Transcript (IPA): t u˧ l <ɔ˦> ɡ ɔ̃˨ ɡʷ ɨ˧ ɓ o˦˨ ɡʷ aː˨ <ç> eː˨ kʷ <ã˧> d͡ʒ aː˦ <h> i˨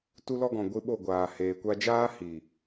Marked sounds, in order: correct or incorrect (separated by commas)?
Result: incorrect, incorrect, incorrect, correct